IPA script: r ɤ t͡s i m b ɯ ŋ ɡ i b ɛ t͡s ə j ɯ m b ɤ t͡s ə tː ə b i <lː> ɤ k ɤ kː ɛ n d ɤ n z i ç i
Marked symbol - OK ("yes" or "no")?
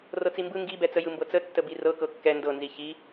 no